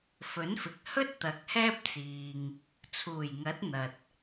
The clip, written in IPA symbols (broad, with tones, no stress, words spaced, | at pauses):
fɵ˨˥nfɪ˨k̚ hɵ˥t̚ t̪ɐ˨˥k̚hɛː˥p̚t͡siː˨ŋ | t͡sʰuː˨˩jŋɐ˨˥t̚ n̪ɐ˨t̚